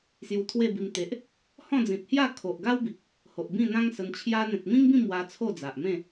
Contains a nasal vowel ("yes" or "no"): yes